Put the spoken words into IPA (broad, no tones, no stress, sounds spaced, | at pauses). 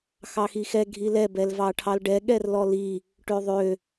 x ɑ x i x ɛ ɡʱ i l ɛ b ɛ l v ɑ ʈʰ ɑ l ɖ ɛ ɠ ɛ r l ɔ l i | ʈ ø ðˤ ø